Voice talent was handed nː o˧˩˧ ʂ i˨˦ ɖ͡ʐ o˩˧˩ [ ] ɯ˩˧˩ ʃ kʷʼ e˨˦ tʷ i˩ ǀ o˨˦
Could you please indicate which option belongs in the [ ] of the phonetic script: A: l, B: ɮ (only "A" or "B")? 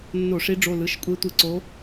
A